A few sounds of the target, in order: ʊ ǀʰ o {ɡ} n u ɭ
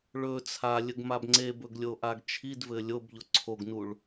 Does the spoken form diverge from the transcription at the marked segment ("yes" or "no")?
no